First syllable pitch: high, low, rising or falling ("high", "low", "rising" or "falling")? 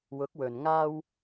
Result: rising